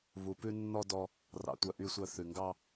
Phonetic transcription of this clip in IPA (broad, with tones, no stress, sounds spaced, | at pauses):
β u˨ p ʉ˧ nː ɔ˧ d ɔ˧ | r ɑ̰˨ tʷ œ˨ ʔ y˨ sʷ œ˨ θ ʉ˨ ŋ ɡ ɑ˧